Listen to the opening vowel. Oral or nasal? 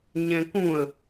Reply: nasal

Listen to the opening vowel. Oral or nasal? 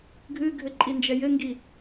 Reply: oral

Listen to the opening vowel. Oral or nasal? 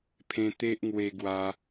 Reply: nasal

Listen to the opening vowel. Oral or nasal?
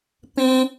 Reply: nasal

